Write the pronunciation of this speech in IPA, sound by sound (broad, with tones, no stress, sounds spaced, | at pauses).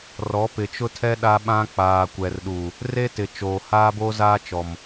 r ɔ˨˦ p ɪ˨ t͡ʃ ʊ˦ tʰ ɛ˦ ɗ a˦ ɓ ã˦ k͡p aː˨ kʷ ɛ˨ r ɗ u˨ | r e˦ t ɪ˨ t͡ʃ oː˨ h aː˦ b oː˦ z aː˦ t͡ʃ ɔ˨ m